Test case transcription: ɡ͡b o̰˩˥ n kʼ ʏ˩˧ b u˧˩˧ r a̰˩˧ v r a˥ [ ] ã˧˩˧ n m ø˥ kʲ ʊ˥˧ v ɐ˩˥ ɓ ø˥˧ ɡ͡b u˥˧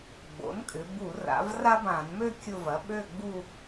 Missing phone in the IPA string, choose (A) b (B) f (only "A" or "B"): A